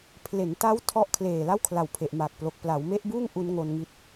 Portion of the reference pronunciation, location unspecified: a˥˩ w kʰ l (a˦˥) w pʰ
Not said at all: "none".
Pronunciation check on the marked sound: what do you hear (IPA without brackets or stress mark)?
a˨˩